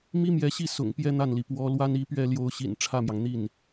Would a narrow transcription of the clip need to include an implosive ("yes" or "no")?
no